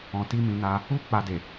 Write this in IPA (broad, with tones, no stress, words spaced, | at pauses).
ɔ̃˨ ti˧mĩ˨ na˧ | u˦ k͡pa˧de˨